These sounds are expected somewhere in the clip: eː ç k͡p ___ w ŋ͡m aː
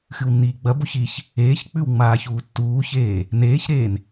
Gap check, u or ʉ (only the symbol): ʉ